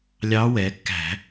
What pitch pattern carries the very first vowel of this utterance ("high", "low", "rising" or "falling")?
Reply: rising